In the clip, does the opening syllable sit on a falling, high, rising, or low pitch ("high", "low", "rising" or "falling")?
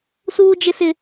high